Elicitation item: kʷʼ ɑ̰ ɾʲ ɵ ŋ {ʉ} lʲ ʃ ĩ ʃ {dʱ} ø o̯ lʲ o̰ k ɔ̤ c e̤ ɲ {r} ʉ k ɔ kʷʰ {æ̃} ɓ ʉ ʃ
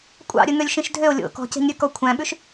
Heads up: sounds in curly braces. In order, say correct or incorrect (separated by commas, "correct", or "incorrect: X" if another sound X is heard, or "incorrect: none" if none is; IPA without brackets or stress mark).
incorrect: ø, correct, incorrect: ɾʲ, correct